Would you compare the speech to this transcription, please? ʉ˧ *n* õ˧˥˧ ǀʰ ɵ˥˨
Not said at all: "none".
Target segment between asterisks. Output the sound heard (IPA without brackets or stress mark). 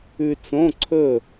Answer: t͡s